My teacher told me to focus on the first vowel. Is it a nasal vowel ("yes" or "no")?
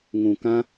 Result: yes